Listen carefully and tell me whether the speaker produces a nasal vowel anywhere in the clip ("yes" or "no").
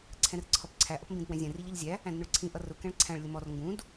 yes